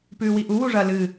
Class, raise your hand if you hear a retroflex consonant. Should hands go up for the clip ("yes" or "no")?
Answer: yes